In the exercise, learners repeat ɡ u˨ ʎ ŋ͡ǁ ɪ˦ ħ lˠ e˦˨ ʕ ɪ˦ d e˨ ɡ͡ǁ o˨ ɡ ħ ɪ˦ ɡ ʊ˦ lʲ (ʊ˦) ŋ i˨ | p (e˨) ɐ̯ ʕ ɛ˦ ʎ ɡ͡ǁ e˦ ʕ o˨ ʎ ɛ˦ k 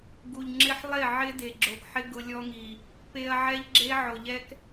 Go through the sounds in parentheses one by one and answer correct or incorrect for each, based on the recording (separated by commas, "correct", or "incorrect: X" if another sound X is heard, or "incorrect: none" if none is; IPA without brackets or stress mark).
incorrect: ɔ˦, incorrect: e˦